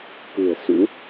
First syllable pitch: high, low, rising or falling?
low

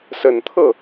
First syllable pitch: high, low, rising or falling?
low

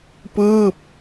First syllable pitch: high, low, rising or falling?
falling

